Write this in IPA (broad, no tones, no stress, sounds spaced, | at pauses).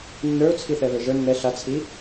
nː ə˞ ʊ̯ t͡sʰ i θ ɛ β ə˞ ʒ ə˞ nː ɛ ɬ a t͡sʰ i